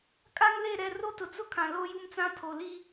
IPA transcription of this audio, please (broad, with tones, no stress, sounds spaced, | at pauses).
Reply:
kʼ a˦ ŋ l e˦˨ ɾ ɛ˦˨ r o˦ t ʊ˨ t͡s ʊ˦ kʰ ã˨ l o˦ j u˦ m t͡s ã˦ pʰ o˨ l i˦